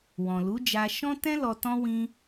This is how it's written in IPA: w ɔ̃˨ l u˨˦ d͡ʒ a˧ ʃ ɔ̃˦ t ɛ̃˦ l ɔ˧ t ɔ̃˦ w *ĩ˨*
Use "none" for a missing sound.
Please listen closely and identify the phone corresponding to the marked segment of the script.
ĩ˧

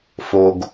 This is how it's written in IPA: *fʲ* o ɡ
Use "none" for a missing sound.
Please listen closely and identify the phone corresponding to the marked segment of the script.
f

